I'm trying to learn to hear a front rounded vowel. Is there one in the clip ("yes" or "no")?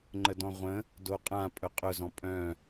yes